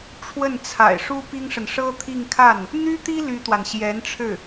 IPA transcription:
ʈ͡ʂʰ w ə˥˩ n t͡sʰ a̰˨˩ ɪ̯ ʂ u˥ p i˥ ŋ ʂ ə˨ n ʂ ɤ˥ t̪ʰ i˥˧ ŋ kʰ a˥˩ n | n̪ y˥ t̪ i˥ l y˥ t̪ w a˨ n ɕ j ɛ˧˥ n ʈ͡ʂʰ ɻ̩˥˩

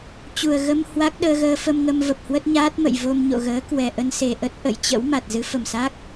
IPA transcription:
t͡ɕ u˨˩ ə̯ ɣ ə˧ m h w a˦˥ k̚ ɗ əː˧ ɣ əː˧ f ə˧ m ŋ ə˧ m v ə˨˩ p̚ h w ə˦˥ t̚ ɲ aː˦˥ t̚ m ə̰˧˨ j v o˧ m ɲ o̰˧˨ ɣ əː˨˦ k w ɛ˨˩ ʔ ə˧ n s e˨˩ ʔ ə˦˥ t̚ ʔ ə̰˧˨ j t͡ɕ ə̰˧˥ w m a˨˩ t̚ z ɨ˨˦ f ə˨˩ m s a˦˥ k̚

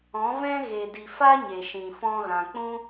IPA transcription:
ɔ̃˨˦ v ɛ̃˦ ɣ e˨ d i˨ f a˦ ɲ e˨ ʃ ĩ˨ f ɔ̃˧ ɣ ã˨ k͡p ũ˦

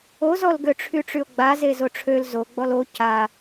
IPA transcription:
o z ɔ l ɡ ø ʈ͡ʂʰ y ʈ͡ʂ y o̯ ɡ͡b a z e z o ʈ͡ʂʰ ø l z o ɡ͡b ɔ l o c a

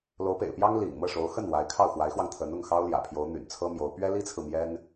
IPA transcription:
l o˧˥ ʊ̯ p ḛ˨˩ ɪ̯ p j ɑ˥ ŋ l ḭ˨˩ ŋ m ɤ˥˩ ʂ o˧˥ ʊ̯ x ə˥˩ n w a˧˥ ɪ̯ kʰ ɑ˥˩ ʊ̯ x w a˧˥ ɪ̯ x w ɑ˧ ŋ t̪ʰ ə˧˥ n ʊ˥˩ ŋ x ɑ˥ ʊ̯ l j ä̰˨˩ pʰ j o˧˥ ʊ̯ n̪ y̰˨˩ n t͡sʰ ɤ˥ m j o˧˥ ʊ̯ p ɥ ɛ˥ l i˥ t͡sʰ ɹ̩˨ m j ɛ˥ n

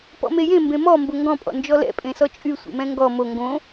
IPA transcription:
p ɔ̰ m e j ẽ m b ẽ m ɔ m b o ŋ ɡ ɔ̃ pʼ ɔ̰ n d͡ʒ ɔ l ɛ̰ pʼ ẽ s ɔ t͡ʃʼ y sʷ ḛ m ɛ̃ ŋ ɡ ɔ m o ŋ ɡ õ

